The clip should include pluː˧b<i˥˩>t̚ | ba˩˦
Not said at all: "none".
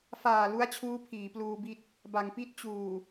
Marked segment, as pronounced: i˥˩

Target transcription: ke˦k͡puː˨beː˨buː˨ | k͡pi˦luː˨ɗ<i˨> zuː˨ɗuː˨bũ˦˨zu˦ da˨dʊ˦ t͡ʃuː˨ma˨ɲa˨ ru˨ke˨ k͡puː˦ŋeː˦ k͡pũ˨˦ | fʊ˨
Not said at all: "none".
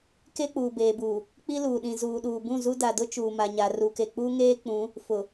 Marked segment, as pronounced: ĩ˨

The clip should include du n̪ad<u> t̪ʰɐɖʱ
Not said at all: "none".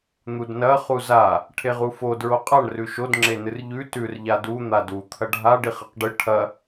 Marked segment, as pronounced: u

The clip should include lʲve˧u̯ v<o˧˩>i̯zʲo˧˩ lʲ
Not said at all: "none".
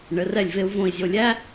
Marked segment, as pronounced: õ˧˩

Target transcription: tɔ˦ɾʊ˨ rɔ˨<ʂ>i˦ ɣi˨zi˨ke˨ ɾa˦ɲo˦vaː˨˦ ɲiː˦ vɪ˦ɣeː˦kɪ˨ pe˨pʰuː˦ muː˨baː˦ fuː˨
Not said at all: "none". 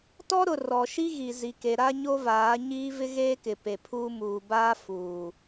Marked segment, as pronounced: ʃ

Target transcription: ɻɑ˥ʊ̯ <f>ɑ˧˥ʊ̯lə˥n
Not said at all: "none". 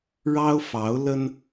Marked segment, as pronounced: f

